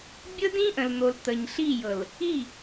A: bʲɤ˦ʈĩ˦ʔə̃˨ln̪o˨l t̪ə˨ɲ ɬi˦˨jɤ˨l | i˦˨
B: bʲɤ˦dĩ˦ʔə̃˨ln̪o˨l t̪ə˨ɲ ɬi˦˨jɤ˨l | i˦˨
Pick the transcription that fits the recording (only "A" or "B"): B